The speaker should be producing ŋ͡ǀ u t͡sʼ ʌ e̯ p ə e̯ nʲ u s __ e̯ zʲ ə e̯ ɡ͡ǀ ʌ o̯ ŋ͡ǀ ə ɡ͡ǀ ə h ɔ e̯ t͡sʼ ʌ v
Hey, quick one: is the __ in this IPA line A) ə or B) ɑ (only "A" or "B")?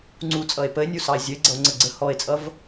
B